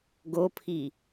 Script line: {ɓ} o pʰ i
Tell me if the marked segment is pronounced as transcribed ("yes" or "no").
no